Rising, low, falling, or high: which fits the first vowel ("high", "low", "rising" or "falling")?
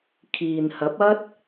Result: low